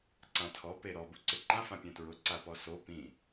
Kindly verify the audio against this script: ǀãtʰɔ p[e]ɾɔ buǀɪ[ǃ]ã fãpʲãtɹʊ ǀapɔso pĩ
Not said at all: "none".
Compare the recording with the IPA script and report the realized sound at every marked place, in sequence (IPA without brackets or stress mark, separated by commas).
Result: e, ǃ